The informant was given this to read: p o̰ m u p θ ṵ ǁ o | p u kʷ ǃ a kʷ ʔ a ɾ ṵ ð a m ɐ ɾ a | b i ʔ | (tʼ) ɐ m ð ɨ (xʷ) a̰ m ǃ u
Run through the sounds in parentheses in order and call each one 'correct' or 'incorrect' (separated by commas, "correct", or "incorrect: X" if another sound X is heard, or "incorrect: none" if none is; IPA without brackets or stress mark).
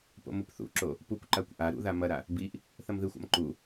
incorrect: θ, correct